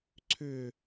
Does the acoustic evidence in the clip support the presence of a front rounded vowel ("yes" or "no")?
yes